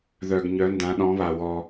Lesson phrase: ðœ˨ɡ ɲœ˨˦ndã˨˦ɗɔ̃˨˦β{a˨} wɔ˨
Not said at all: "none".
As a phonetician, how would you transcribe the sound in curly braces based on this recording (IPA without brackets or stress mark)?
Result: a˨